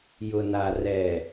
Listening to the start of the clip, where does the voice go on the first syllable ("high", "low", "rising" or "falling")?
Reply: low